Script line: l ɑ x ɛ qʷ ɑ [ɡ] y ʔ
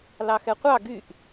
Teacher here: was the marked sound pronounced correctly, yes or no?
yes